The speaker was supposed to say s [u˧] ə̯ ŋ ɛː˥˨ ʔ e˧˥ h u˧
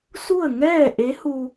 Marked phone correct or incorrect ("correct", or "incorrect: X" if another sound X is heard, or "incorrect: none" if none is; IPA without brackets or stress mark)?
incorrect: u˥˨